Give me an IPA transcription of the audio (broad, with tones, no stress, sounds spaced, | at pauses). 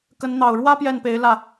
k ə˧˥ n n̪ ɑ˨˩ ʊ̯ ɻ w ä˥ p j ɛ˥˩ n p e˧˥ ɪ̯ l ä˥˩